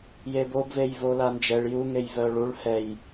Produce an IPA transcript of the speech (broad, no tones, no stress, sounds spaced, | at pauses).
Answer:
j e b o b v e j v o l a n d͡ʒ ɛ ɭ j u ŋ e j v œ ɭ u ɭ h ɛ j